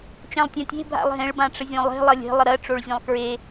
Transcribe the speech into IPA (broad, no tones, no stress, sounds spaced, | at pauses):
t͡ɕ ã lˠ tʲ ã tʲ e̤ bʱ a̰ lˠ ɦ ẽ ɭ b ã ʈ͡ʂ ə zʲ õ lˠ e̤ lˠ ʌ lʲ e̤ lˠ ə ɾ ɜ ʈ͡ʂ o ɭ zʲ ẽ lˠ k ɹ e